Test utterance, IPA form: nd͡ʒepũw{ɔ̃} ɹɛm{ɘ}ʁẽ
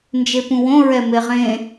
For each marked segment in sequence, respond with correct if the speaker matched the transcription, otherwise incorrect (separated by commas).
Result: incorrect, incorrect